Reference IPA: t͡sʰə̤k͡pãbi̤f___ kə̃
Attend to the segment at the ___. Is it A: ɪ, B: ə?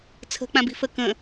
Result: B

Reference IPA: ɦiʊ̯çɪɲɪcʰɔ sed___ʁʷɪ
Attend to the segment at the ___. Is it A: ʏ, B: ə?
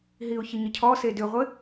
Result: A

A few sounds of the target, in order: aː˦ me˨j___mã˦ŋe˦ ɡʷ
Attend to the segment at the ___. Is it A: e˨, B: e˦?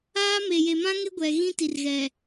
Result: A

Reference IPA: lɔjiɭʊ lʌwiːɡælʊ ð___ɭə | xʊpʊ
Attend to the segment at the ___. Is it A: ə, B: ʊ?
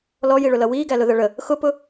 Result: A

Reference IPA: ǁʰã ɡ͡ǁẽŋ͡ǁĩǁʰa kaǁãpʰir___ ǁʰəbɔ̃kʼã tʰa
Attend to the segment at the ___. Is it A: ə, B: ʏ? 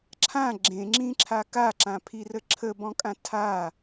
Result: A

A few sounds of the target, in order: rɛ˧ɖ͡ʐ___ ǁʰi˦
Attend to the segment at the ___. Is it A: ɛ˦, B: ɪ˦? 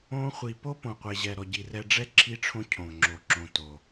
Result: A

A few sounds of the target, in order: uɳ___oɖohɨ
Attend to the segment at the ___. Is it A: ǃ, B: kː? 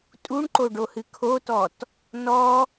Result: A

